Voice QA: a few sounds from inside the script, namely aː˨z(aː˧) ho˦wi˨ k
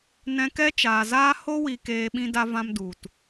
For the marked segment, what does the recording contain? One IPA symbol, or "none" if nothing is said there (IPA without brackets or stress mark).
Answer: aː˦